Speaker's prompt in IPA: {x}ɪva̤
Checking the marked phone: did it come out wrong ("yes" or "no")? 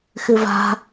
no